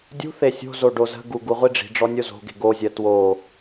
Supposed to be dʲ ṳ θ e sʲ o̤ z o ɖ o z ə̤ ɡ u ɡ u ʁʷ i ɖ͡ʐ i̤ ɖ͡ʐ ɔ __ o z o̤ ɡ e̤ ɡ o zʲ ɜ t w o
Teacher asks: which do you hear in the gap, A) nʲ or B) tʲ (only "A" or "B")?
A